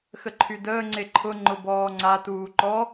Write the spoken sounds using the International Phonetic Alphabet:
x ə ǃʰ y d əː ŋ͡ǀ e ǃʰ ʊ ŋ͡ǃ ʊ b ɔː ŋ͡ǀ a t uː ǃ ɔ

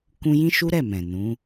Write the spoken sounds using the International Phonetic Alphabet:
k ũ˦ j ĩ˦ ʃ u˦ ɾ ɛ˦˨ m ɛ̃˨ n ũ˨˦

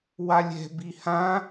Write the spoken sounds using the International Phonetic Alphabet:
w a lʲ ɛ̤ b i h ã

